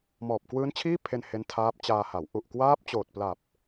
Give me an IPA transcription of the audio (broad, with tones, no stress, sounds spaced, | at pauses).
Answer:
m ɔː˨˩ p̚ k w ɯː˦˥ n t͡ɕʰ iː˥˩ pʰ e˧ n h e˦˥ n tʰ aː˦˥ p̚ t͡ɕ aː˧ h a˩˦ w ʔ u˨˩ ʔ k w aː˦˥ p̚ t͡ɕ oː˨˩ t̚ p l a˨˩ p̚